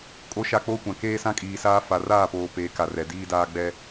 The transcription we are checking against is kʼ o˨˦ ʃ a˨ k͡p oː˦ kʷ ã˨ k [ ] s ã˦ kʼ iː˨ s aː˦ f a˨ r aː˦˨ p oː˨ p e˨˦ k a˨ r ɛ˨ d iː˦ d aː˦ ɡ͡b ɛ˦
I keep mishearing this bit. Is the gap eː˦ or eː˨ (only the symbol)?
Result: eː˦